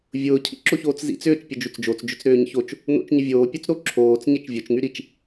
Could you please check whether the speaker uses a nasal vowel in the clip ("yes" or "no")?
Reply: no